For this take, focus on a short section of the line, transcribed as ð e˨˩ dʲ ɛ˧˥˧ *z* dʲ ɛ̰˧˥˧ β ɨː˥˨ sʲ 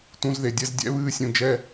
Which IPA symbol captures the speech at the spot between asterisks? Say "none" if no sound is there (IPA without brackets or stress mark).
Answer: z